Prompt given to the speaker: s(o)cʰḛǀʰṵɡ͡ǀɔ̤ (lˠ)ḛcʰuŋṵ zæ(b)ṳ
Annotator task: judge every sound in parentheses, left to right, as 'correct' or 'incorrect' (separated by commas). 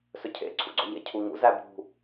incorrect, incorrect, correct